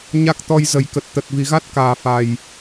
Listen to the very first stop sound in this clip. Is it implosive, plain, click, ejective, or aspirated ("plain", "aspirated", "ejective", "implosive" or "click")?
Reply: plain